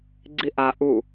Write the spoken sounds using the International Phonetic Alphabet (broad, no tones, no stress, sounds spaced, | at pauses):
ɡ͡ǀ i ʔ a ʔ u